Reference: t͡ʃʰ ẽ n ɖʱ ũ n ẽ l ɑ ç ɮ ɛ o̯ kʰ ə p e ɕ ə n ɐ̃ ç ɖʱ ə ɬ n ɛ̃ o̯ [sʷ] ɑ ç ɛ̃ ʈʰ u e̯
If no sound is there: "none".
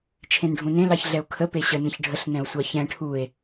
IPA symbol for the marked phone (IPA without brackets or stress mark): sʷ